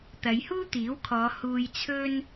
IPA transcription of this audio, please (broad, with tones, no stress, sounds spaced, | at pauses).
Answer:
t̪ ɐ˨˧ j h uː˥ t̪ iː˨˥ w kʰ ɔː˨˧ h uː˧ j t͡sʰ ɵ˥ n